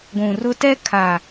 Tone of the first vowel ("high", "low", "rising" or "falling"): low